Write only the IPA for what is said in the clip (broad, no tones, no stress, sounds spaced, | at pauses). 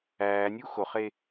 æː nʲ uː x o χ e